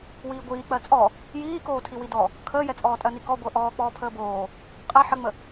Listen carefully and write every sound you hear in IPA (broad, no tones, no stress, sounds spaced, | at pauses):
w iː ɡʷ iː k͡p ɜ t͡sʼ ɔ | j iː k oː tʰ i w i d ɔ | kʰ əː j ɛ t͡sʼ ɔː tʼ ɜ n i k ɔ ɡʷ əː ʔ ɔː k͡p ɔː pʰ əː b oː | qʼ ɛ ħ ə ŋ͡m ə